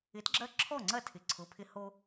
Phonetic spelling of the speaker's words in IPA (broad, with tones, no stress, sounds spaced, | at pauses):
ɪ˨˥ t ɡ͡ǁ ɐ˦˥ ǁʰ ɔ˥˩ ŋ͡ǀ ɐ˥˩ tʰ ɪ˩˧˩ ǀʰ ʊ˩˧˩ pʰ ɪ˧ h o˧